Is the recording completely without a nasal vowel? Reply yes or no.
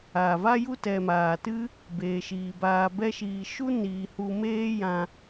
no